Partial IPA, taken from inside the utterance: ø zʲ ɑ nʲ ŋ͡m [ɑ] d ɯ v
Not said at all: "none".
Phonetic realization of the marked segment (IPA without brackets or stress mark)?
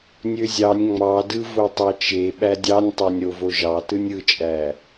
ɑ